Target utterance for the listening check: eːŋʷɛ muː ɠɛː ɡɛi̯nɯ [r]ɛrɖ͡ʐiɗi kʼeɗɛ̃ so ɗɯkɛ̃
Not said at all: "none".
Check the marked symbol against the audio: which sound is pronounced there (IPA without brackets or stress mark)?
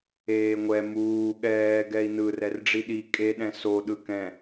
r